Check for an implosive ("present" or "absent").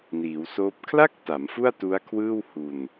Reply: absent